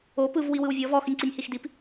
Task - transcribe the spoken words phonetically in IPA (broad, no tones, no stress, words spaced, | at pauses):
o pɯv wiwɯwvʲɔv ɔx ʏnʲǀinʲhixdip